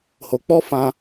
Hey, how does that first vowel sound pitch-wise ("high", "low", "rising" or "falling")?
low